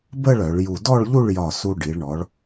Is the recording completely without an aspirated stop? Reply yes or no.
yes